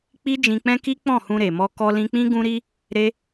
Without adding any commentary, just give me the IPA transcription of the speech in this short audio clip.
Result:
k͡pi˦d͡ʒĩ˧k͡pɛ̃˦ki˦ k͡pɔ̃˦˨hũ˧ɾe˨mɔ˧ kɔ˧lĩ˧k͡pĩ˦ ɡũ˦ɾi˦ | ɾe˦

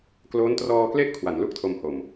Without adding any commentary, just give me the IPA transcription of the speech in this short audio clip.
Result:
kloː˦˥ntrɔː˧kle˥˩ʔ kʰwa˩˦n lu˥˩k̚tʰo˧mho˨˩m

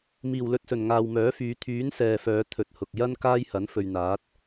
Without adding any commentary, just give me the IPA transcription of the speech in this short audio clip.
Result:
miː˨˩wlɵ˧t̚sɵ˨˩n ŋaː˨wmœː˨˥fyː˨˧ t̪ʰyː˨˥n sɛː˨fœː˨˧ t̪ʰɵ˨t̚hʊ˨k̚jɐ˥n kaː˥jhɐ˨˥n fɵ˨ɥn̪aː˨˥t̚

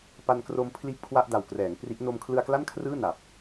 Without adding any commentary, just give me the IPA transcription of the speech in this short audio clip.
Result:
pa˧nkro˧m pʰliː˥˩p̚kʰwa˥˩ʔda˨˩wkrɛː˩˦ŋ pri˦˥ʔ no˧mkʰlɯ˧a̯kla˥˩nkʰrɯː˥˩ na˨˩p̚

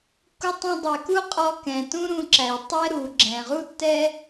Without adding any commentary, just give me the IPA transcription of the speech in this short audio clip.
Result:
ku˧tˤũ˧ dˤɛ˩ku˥qʼɔ˧kɛ̃˩ tũ˥ɾũ˧ǁæ˩j tˤɛ˥ɾu˩ ɡ͡ǁɛ̃˩ʁu˥tːɛ˥

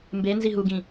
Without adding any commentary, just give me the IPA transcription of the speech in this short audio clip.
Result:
mbe nziɦuɡĩ

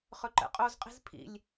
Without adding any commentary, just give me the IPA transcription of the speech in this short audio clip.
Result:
χɵǃɛ̰qʼozqʼi̤z pʰḭlʲ

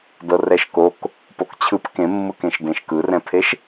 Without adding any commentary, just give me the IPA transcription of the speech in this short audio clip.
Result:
dɤrɛʃkok | pokt͡ɕʰɯp kẽmːɯkẽʃ dẽʃkɯrɛ̃pʰeʃ

